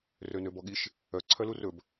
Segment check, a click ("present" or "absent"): present